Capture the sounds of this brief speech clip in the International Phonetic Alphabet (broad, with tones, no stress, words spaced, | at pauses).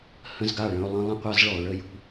hə̃˦zɡa˦˨ɭə̃˦ʊ̯ lˠə̃˦ lˠə̃˦qʷa˦zɭɔ˨ʊ̯ ɭə˦jṳ˦